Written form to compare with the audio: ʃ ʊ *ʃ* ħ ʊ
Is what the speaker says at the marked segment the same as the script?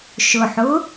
no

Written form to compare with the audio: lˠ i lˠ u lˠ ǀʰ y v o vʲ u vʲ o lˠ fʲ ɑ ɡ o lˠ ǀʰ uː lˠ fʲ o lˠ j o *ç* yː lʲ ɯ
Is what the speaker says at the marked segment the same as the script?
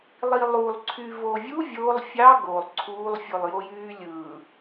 no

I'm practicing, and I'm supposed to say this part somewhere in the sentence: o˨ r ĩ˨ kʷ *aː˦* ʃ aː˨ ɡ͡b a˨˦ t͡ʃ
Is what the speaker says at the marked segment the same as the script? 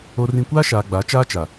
yes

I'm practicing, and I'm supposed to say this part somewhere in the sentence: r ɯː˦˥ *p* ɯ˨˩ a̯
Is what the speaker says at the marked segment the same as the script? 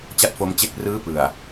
yes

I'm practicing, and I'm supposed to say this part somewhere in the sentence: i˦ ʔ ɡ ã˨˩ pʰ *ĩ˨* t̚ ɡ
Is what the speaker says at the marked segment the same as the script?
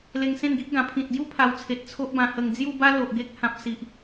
yes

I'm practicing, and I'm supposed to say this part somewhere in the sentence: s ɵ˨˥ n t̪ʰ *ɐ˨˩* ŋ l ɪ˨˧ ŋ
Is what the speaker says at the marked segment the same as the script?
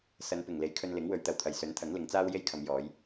no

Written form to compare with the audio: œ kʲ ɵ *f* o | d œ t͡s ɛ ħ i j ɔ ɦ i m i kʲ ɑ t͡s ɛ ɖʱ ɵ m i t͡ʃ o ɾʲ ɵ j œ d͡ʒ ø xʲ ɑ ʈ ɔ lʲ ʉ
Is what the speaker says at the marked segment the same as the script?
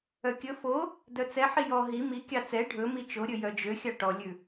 yes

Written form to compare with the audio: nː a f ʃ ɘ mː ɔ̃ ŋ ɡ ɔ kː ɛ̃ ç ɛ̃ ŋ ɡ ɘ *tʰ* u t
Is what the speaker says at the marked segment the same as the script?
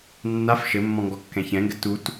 no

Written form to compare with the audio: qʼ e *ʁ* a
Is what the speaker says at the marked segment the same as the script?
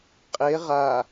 yes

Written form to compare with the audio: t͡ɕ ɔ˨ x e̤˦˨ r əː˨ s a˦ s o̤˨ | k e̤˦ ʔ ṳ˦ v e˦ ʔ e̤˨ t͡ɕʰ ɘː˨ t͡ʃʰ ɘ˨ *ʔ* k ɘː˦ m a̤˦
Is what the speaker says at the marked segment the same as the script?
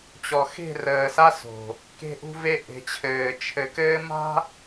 no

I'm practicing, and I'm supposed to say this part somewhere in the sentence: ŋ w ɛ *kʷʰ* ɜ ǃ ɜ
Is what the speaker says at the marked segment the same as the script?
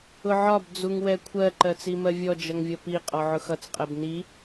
yes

